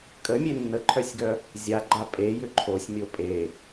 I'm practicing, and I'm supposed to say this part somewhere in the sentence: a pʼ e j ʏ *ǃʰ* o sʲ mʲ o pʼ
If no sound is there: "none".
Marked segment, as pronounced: ǃʰ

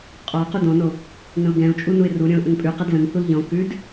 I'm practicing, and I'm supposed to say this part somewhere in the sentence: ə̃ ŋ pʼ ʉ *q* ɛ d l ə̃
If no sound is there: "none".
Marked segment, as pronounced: q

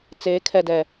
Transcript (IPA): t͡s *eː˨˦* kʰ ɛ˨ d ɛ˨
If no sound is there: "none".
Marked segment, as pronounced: eː˨˦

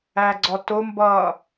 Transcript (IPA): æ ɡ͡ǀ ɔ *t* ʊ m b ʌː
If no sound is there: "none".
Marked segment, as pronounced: t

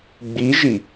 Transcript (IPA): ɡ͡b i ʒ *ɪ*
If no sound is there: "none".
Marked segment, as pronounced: i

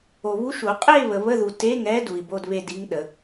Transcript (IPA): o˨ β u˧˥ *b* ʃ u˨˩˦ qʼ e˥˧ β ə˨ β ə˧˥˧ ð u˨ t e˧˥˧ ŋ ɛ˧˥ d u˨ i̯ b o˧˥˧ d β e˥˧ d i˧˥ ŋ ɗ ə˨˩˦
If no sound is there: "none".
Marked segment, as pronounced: none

